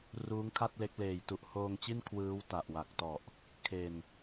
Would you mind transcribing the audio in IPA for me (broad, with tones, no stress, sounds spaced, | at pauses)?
r uː˦˥ ŋ kʰ a˥˩ t̚ l e˦˥ k̚ l eː˨˩ j t u˨˩ ʔ h oː˧ ŋ t͡ɕ i˥˩ n kʰ w ɯː˦˥ w t a˨˩ ʔ w a˨˩ k̚ t ɔ˨˩ ʔ | kʰ e˧ n